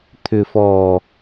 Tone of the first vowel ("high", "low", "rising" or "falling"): low